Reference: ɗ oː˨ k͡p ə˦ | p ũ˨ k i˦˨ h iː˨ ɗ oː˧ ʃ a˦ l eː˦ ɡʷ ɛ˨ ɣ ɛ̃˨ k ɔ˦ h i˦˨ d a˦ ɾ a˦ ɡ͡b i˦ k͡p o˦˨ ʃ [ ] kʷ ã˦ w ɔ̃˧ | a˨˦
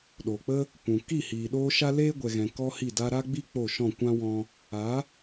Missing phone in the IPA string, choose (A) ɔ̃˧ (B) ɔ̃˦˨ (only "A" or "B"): B